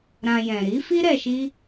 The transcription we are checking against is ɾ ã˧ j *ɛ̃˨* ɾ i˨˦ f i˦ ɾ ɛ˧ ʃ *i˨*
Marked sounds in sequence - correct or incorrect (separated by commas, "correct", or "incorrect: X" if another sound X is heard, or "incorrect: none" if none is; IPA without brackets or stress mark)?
correct, incorrect: i˦